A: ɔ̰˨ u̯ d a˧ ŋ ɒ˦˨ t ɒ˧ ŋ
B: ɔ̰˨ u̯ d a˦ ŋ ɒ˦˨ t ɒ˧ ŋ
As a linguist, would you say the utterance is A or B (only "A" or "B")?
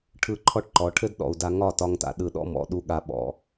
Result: A